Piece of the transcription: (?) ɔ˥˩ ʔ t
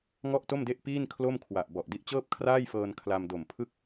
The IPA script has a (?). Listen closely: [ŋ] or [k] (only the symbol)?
ŋ